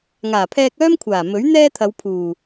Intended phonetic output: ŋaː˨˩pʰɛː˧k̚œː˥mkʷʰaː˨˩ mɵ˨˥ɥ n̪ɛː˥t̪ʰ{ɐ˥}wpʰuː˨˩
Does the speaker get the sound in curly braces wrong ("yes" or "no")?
yes